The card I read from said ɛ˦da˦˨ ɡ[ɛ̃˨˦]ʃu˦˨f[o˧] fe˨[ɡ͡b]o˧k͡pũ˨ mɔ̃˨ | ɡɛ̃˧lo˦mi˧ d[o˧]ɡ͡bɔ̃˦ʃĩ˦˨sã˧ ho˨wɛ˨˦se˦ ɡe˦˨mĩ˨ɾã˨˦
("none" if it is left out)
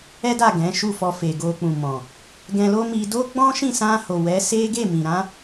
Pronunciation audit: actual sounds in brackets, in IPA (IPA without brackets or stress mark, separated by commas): ɛ̃˨˦, ɔ˧, ɡ, o˦